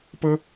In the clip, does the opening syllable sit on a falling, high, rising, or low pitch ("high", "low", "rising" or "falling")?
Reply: high